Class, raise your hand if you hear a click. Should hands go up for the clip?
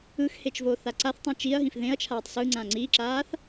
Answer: yes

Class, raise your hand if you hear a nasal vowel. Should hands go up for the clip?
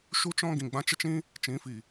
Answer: yes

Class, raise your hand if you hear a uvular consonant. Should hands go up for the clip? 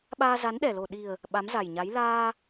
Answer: no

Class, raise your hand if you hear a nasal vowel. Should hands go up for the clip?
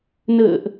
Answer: no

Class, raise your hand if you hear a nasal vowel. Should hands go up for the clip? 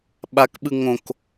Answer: yes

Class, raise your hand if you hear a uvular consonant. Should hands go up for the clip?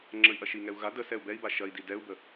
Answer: no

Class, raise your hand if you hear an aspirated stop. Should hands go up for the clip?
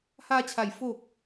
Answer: yes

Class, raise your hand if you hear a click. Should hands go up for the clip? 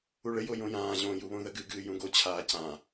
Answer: no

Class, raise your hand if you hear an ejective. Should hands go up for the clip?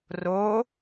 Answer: no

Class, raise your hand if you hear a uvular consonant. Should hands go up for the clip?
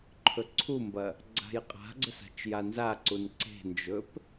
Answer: yes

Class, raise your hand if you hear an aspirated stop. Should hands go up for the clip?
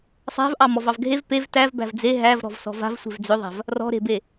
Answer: no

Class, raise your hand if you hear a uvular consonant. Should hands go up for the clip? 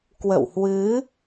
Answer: no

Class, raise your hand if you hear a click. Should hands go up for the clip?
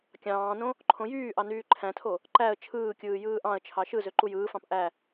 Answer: yes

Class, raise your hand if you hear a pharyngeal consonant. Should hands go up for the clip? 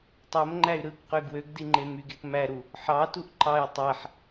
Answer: yes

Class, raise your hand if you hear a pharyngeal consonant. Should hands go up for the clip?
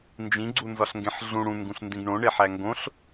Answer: yes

